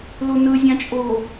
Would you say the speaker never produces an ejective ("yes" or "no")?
no